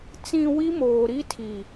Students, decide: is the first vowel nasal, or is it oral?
nasal